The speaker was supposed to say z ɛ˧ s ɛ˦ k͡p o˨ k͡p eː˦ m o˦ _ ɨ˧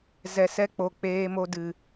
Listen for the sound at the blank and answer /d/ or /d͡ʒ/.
d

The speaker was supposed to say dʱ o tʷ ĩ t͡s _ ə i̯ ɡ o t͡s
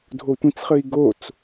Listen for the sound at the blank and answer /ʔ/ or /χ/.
χ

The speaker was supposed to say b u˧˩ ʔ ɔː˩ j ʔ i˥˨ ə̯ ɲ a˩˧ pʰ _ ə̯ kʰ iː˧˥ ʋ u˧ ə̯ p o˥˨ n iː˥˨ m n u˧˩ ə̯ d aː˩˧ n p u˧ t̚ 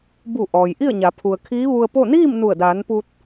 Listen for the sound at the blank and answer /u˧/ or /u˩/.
u˩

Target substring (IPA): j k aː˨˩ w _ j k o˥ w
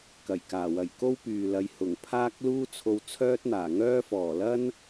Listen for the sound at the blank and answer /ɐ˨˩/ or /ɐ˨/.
ɐ˨˩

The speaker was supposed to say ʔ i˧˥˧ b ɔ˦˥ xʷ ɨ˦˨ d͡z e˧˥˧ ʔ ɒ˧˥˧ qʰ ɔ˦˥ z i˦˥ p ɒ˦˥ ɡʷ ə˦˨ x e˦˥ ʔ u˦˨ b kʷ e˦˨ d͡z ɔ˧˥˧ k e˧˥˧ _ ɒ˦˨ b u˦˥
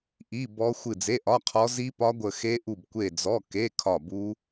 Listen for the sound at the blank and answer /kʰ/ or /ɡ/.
kʰ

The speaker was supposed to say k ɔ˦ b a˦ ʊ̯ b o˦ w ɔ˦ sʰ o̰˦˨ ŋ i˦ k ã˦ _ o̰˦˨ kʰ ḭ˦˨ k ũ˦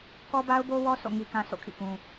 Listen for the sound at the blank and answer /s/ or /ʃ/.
s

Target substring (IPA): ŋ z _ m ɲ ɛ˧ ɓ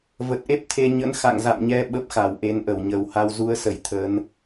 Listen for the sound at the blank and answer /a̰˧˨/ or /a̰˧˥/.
a̰˧˨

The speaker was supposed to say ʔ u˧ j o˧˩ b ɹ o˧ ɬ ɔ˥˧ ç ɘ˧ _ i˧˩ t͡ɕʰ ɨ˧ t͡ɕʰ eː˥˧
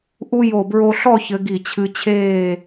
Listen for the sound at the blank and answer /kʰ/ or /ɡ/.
ɡ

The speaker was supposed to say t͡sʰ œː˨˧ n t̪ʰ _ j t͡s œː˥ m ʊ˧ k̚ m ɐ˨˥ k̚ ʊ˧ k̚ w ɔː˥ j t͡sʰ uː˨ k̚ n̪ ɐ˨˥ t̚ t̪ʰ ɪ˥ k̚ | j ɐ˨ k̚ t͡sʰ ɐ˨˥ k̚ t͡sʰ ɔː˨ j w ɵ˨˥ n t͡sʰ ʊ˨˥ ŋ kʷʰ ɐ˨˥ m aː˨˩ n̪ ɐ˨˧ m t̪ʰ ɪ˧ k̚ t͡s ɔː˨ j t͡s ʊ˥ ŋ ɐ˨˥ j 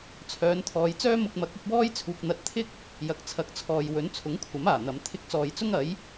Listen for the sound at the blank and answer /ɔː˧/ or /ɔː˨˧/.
ɔː˨˧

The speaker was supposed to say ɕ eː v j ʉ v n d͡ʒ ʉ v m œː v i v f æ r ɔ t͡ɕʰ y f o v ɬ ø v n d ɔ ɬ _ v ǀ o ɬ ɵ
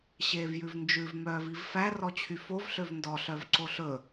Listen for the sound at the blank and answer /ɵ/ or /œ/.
œ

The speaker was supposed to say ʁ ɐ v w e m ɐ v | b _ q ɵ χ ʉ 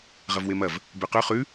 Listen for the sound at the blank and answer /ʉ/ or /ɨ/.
ʉ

